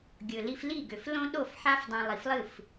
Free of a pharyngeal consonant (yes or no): no